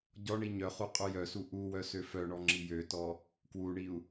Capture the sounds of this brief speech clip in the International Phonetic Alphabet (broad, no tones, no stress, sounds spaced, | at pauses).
ɟ ɔ ɳ i ɲ œ χ u qʼ u j œ s u ʔ u w œ s ø f œ ɳ ɔ ŋ͡ǁ i j ø t ɔ | k w u ɳ i u̯